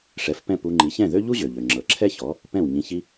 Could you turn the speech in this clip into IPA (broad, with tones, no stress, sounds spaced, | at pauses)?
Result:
ʂ ɛ˩˥ f p ɛ̃˥˩ p u˧ ŋ͡ǃ i˩˥ ç ɛ̃˥˩ ð ø˥ ʎ u˥ ʑ ø˩ ʎ ø˩ ŋ͡ǁ ɤ˩ ǁʰ ɛ˥ ç ɔ˩˥ | p ɛ̃˥˩ w ɲ ĩ˧ ç i˥